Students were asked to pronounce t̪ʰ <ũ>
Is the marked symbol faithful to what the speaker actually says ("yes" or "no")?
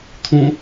yes